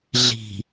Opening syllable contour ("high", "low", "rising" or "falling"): low